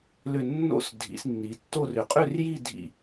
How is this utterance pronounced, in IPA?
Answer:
lʏ˥˧ nːo̰˥˧s dʱḭ˨˦snːi˨˦tːo˥˧r ʏ˨˩˦qʼʏ˥˧rji˥˧ dʱḭ˥˧

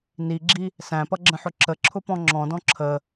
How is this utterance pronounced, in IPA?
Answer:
niɡ͡ǁi | sæ̃pʌɡ͡ǁə̃ħʊ ǁəǁʰʊpɔ̃ ŋ͡ǁɔ̃dɔ̃ ǁʰə

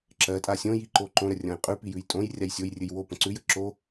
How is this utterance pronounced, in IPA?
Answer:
ǁɜtʼa sʲõjiǃo ǃõɾərʲõj qʼʉpijʉj tʼõjrʲaj sʲojrʲɨj wopə̃ ǀʉjə ǁo

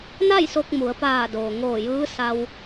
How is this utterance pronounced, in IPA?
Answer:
na˥˨jso˧k̚ mu˩˧ə̯paː˧˩doː˩ŋoː˧˩ jɯː˧˥sa˧w

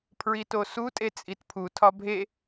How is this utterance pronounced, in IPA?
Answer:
pʰɹitosu tʼet͡sʼitpʰu tʰɒbʱe

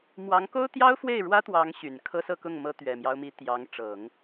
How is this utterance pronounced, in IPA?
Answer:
mwɑ˧˥ŋko˥ʊ̯t̪jɑ˥ʊ̯ fwe˥˩ɪ̯ ɻwä˥t̪wɑ˧˥ŋ ɕy˨˩nkʰɤ˥sɤ˥˧kʊ˥˩ŋ mɤ˥t̪ɥɛ˨˩mjɑ˦ʊ̯mi˧˥ t̪jɑ˧˥ŋʈ͡ʂɤ˨˩˦ŋ

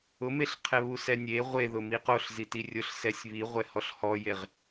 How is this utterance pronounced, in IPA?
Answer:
ʊmeɬ qʰɛβusɛnʲe ʁʷeðʊmi qoɬ zitirʲʊɬ sɛsʲβiʁʷɛ hɔɬhɔjeʁ

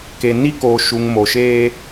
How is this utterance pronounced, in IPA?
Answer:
ke˨ni˦koː˨ʃu˨ŋ mo˨ʃeː˦

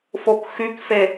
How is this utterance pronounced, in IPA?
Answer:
fokxykfe

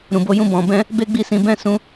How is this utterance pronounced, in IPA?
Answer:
ɾũ˨bo˧jũ˧ bɔ̃˨bɛ̃˧ | be˦ɡ͡bi˦˨sĩ˨˦ bɛ̃˦˨sũ˨˦

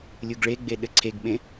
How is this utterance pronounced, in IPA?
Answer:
lʲuɡɭeɡ͡be ɗɘǀʰeɡɓẽ

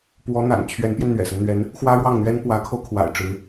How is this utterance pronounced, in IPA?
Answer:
pwɔ˧˥ n̪a̰˨˩n t͡ɕʰɥɛ˧˥npjɛ˧n n̪ɥɛ̰˨˩sə˦n n̪ɥɛ˧˥n | xwä˥ɻwɑ˥˩ŋn̪ɥɛ˥n pwä˧˥kʰo˧ʊ̯kʰwa̰˨˩ɪ̯ ʈ͡ʂɻ̩˧˥

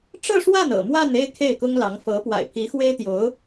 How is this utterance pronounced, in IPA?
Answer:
ʈ͡ʂɤ˥˧ʂwa˥˩nɤ̰˨˩ mwa˥˧ne˥˧ɪ̯ kʰe˥˩ɪ̯kʊ˥ŋlɑ˧˥ŋ fɤ˧˥ pwa̰˨˩ɪ̯pʰi˧˥xwe˥ɪ̯ t̪jo˧˥ʊ̯

